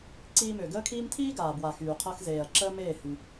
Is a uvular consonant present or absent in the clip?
present